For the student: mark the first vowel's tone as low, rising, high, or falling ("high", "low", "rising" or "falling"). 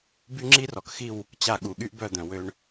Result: high